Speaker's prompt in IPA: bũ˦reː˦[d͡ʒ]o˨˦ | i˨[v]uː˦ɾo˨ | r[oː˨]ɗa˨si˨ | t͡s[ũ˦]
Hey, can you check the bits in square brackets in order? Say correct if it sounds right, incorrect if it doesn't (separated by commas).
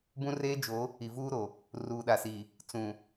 correct, correct, incorrect, incorrect